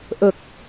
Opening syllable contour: low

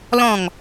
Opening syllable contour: falling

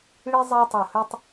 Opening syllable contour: high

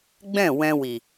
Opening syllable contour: falling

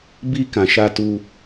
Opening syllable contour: high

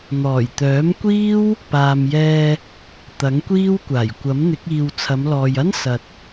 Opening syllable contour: low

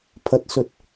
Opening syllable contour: low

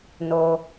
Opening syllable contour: low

